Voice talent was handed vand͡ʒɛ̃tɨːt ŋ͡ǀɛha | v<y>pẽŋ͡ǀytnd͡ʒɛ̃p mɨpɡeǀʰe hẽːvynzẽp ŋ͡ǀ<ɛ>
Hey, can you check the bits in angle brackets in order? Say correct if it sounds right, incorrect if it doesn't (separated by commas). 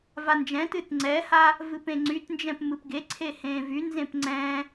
incorrect, incorrect